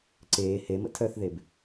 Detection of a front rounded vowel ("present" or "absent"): present